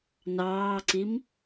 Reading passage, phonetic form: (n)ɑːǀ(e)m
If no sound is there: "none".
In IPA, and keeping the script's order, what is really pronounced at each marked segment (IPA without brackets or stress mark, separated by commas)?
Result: n, i